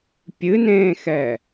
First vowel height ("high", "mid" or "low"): high